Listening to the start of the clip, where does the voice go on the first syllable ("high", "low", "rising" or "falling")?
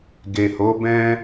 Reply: low